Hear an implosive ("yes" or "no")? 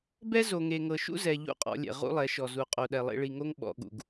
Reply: yes